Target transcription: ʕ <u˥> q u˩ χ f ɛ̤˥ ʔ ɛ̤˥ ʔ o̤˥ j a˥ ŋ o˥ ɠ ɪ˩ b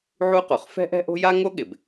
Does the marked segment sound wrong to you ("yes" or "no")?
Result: no